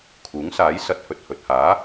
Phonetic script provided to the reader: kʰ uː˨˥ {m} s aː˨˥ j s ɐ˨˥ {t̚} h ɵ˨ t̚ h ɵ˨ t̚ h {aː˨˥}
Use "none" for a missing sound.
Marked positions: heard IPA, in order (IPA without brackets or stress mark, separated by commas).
ŋ, t̚, aː˨˥